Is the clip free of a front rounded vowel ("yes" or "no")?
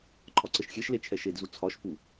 yes